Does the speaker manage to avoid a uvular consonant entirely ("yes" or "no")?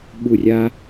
yes